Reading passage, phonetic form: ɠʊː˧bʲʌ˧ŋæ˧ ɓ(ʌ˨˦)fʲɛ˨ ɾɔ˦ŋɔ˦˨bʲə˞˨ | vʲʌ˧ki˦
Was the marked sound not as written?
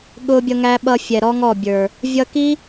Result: yes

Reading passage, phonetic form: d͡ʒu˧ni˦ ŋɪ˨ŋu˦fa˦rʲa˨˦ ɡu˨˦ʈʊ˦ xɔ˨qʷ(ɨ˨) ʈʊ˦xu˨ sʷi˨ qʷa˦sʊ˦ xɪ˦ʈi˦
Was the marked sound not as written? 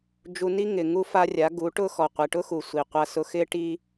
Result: yes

